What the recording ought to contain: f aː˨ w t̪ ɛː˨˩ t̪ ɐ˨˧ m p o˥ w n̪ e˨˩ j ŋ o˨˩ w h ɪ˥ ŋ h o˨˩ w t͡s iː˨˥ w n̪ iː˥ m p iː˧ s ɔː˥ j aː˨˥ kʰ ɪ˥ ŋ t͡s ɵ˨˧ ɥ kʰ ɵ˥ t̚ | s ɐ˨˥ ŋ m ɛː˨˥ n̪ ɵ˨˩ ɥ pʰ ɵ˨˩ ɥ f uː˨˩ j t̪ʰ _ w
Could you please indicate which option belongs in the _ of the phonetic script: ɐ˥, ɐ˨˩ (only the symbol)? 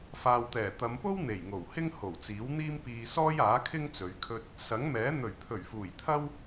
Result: ɐ˥